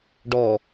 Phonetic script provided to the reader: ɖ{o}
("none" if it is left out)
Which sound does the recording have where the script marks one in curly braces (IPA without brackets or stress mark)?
ɔ